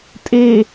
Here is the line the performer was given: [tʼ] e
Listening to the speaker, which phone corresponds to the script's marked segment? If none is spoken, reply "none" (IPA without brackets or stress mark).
tʼ